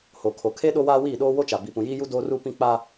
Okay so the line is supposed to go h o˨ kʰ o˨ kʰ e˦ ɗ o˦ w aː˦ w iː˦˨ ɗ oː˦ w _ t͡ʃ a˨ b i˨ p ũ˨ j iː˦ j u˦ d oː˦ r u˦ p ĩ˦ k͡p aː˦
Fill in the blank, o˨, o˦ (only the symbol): o˦